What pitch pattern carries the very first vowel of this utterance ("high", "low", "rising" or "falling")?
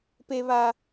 low